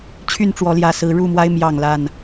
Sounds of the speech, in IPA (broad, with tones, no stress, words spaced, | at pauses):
t͡ɕʰy˥˨nʈ͡ʂwɔ˨˦ljä˨˩ sɹ̩˨˦ɻu˥˨mwa˦ɪ̯ mjɑ˥˨ŋla˥˨n